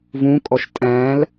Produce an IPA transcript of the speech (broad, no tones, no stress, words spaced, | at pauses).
vũkʼɔʃ tʼæ̃l